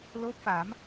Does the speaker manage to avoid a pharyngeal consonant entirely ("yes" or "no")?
yes